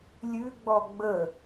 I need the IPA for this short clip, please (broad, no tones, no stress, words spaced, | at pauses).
lʲʉɡ͡bɔ ɡ͡bə